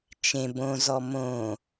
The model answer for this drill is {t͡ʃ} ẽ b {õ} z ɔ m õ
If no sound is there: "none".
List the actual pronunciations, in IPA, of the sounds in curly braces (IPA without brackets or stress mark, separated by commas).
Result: t͡ʃ, õ